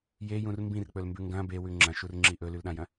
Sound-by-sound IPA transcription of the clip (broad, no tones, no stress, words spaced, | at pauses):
jejũr mbĩrk͡pɵlmbʉ ŋɡɐ̃ bewʉ ŋ͡ǁɐ̃ʃurŋ͡ǁi ʔɵlʉlɗãjɐ̃